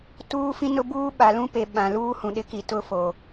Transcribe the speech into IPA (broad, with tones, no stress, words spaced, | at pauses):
tuː˦fĩ˦nʊ˦buː˦ ɓa˨lũ˦pe˨ ɓã˨ luː˦hũ˨ɗɪ˦ki˨ tʊ˦fo˨